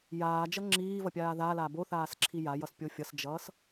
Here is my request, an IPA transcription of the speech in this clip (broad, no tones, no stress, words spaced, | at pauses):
jaːd͡ʒʌ ŋ͡ǁiːvʌpʲaː ðala boθaːsǁʰi jajʌspʲo fʲʌsd͡ʒʌːs